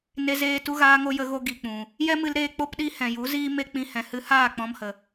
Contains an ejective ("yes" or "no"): no